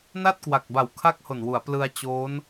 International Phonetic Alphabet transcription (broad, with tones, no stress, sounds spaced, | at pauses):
n a˥˩ t̚ k w a˨˩ k̚ b a˨˩ w kʰ a˦˥ k̚ h o˨˩ n w u˩˦ a̯ p l ɯ˧ a̯ t͡ɕ oː˦˥ n